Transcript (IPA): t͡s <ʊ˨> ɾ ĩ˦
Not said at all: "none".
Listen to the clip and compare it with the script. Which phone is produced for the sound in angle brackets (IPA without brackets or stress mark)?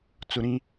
ʊ˦